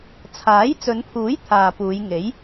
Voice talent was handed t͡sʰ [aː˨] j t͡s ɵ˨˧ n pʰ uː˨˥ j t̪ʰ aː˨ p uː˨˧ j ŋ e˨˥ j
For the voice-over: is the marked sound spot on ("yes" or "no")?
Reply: no